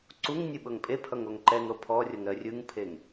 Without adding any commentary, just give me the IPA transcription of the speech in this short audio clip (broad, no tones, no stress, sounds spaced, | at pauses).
ǀ u ŋ nʲ ɯ ɓ ɤ ŋ pʼ e pʰ ʌ ŋ o ŋ ǃ ɛ ŋ ɾ o pʰ ɔ rʲ ɤ ŋ ɾ ɜ rʲ ɯ ŋ pʰ e ŋ